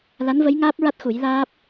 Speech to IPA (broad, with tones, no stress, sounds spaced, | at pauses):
l a˧˥ n v ə˧˥ j ŋ aː˦˥ p̚ ɹ a˦˥ t̚ x u˨˩˦ j l aː˦˥ p̚